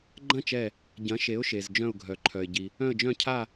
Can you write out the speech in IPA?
ɡ͡ǃ ɐ̃˥˧ t͡ʃ ɛ˧˩ | ɟ ɐ̃˩˥ ʃ e˩˥ ʊ̯ ʃ e˩ z d͡ʒ œ̃˧˩ ʊ̯ ɡʱ œ˩ ǃʰ œ˩ ɪ̯ ɟ i˩ | œ̃˧˩ ə̯ d͡ʒ œ̃˧˩ cʰ a˧˩

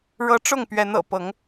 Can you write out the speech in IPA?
ɻ ɤ˦ ʈ͡ʂ ʊ˥˨ ŋ p ɥ ɛ˨˦ n ɤ̰˨˩ p ɤ˨˦ ŋ

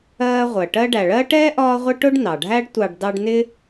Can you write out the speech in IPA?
ɜː˥ ʁʷ ɜ˨ ʈ ɜ˦ ɖ æ˨ ɭ ɜ˥ ʈ ɛː˥ ʔ ɒː˦ ʁʷ ɪ˦ ʈ ʊ˥ ɖ n ɑ˩ ɖʱ æ˥ ɖ tʷ ɑ˨ ɖ d ɑ˦ ɖ n ɪ˥

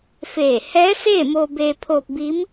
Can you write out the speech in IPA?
f eː˧˩ h ɛː˧˥ s eː˥˨ m oː˧ b eː˧ pʰ oː˧ p̚ b i˧˥ m

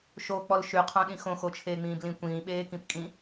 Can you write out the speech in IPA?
ʃ o k͡p ɔ l ʃ y qʰ õ ɗ ĩ x õ x o t͡ʃʰ eː ŋ͡m ĩː b l ĩ kʷ ĩː ɓ eː k ĩ p kʼ ĩ

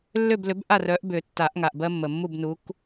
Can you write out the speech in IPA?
lː ʏ˥˨ b l ʏ˨˥ b ʔ a˥˨ r œ˨˥ ʔ b ʏ˨˩˦ tː a˨˩˦ ʔ ŋ a˩ ʔ b ɜ˦ mː ə˩ mː u˥˨ b n u˨˥ k

